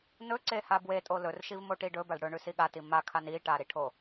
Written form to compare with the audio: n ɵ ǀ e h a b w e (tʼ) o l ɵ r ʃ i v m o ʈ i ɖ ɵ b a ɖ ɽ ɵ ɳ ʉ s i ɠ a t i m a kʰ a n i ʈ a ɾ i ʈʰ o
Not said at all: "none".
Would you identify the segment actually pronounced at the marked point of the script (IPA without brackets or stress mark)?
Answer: tʼ